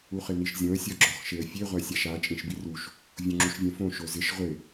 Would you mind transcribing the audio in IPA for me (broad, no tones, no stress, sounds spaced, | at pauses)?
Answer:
u χ ɪ n i ʃ zʲ õ ə̯ sʲ ɔ ɡ͡ǁ ɔ χ ʃ e ə̯ fʲ e ʁʷ a sʲ a ʃ a t͡ʃʼ ĩ ʃ b i r u ʃ | vʲ õ ŋ͡ǁ u ʃ vʲ ɛ̃ f õ ʃ o z ɪ ʃ ʁʷ ɪ